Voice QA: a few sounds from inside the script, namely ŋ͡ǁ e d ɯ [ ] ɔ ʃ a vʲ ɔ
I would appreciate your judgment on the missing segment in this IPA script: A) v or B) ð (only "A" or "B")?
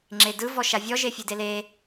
A